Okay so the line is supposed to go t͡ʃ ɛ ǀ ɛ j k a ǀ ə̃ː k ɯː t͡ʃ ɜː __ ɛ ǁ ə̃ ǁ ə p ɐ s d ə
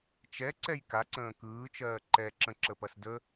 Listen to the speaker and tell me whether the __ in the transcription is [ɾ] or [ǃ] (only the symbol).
ǃ